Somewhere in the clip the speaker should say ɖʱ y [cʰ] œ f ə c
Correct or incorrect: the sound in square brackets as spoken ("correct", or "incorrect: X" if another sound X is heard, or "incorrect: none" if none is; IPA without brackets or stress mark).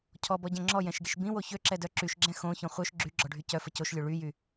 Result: incorrect: c